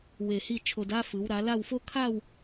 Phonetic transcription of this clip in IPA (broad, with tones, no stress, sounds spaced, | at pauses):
w e˧˩ h i˥˧ t͡ʃʰ o˧ d a˥ f ɯ˩˧ w ɾ a˩˧ l a˥˧ w f o˥ kʰ a˥˧ w